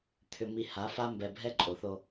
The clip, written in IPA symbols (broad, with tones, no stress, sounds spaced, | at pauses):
t̪ʰ ʏ˨ m i˨ h a˨˦ f a˦ m b ɛ˨ bʱ ɛ˦ ǃʼ o˨ θ o˦